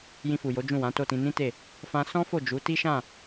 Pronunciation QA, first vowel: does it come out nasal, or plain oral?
nasal